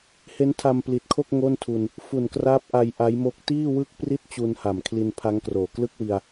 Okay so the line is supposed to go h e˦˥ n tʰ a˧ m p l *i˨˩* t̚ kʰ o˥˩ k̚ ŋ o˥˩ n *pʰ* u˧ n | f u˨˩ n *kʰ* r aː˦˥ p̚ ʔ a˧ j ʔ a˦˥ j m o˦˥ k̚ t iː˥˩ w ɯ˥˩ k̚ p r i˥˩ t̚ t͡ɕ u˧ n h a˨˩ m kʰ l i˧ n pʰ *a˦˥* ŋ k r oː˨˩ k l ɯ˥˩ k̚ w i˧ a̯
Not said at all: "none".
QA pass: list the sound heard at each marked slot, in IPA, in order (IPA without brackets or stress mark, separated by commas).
i˨˩, tʰ, k, a˦˥